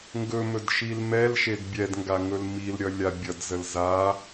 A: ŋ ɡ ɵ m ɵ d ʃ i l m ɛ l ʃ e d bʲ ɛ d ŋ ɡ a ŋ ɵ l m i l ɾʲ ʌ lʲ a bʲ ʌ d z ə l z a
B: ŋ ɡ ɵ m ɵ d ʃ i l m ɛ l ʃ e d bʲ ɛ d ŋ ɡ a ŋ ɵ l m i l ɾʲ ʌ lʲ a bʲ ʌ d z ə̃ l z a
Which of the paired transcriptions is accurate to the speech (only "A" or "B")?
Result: A